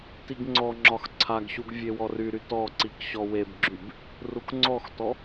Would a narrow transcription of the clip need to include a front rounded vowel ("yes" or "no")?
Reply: yes